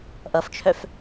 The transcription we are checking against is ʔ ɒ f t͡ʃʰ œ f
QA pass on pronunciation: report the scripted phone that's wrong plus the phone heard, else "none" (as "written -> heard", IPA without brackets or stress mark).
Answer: ɒ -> ʌ